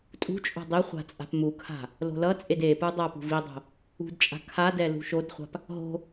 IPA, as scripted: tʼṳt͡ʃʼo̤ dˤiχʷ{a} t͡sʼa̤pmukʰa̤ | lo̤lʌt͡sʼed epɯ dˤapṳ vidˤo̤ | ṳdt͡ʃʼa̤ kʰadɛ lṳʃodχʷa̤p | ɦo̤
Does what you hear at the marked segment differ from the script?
yes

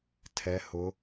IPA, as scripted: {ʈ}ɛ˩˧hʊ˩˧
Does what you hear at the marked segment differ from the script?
yes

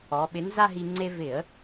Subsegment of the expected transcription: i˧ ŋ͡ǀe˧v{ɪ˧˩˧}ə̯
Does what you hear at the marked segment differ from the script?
no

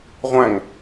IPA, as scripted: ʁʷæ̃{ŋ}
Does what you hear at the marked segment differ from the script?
no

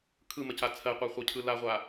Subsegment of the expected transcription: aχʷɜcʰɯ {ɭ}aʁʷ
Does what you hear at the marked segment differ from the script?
yes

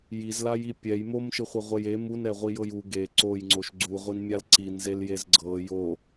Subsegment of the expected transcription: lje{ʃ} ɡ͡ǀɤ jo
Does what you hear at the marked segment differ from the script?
yes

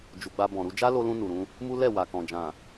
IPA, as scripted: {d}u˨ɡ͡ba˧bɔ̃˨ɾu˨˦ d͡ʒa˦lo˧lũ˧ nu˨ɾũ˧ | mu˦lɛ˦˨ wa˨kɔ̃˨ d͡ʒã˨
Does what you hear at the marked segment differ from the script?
yes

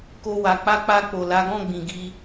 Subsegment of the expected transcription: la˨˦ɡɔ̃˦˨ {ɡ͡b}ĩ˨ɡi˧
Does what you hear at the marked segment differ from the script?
no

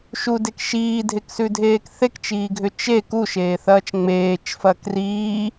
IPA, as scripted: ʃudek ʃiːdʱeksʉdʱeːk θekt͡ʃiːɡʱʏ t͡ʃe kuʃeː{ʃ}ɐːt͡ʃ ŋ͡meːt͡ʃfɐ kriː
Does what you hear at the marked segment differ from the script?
yes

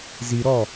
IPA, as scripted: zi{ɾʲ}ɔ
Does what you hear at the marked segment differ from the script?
yes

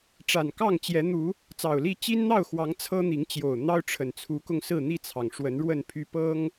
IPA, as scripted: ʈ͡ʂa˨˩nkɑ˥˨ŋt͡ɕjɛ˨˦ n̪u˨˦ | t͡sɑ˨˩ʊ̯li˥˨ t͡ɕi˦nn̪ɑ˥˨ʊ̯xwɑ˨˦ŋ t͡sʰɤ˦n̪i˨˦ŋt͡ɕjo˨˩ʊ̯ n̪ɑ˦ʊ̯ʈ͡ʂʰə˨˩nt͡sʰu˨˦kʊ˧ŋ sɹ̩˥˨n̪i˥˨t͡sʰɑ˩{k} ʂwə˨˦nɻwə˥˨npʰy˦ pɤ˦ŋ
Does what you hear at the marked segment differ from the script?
yes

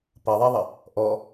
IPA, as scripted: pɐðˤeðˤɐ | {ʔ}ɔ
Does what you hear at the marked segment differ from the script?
no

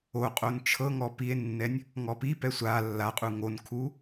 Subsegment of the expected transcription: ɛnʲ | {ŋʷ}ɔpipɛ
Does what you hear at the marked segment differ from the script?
yes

